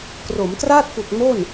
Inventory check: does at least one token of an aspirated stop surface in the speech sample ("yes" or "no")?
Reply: no